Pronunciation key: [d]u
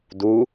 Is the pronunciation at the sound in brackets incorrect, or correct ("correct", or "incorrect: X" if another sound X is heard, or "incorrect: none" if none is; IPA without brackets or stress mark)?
correct